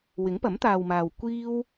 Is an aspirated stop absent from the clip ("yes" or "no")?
yes